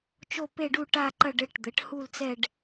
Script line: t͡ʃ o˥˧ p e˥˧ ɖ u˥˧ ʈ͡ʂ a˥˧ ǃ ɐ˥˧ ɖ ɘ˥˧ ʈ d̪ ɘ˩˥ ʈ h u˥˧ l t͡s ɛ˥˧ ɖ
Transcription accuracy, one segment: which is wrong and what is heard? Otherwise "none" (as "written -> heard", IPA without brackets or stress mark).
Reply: ʈ͡ʂ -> ʈ